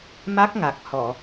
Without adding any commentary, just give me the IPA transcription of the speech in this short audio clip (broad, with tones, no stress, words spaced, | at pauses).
ma˦˥k̚ŋa˨˩k̚hɔ˨˩˨